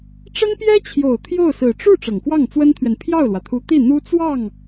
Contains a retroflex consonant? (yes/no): yes